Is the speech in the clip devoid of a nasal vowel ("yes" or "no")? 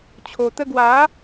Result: yes